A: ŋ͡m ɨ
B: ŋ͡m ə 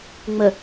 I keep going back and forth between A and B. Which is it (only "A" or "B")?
B